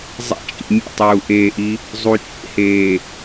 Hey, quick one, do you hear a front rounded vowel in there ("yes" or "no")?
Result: no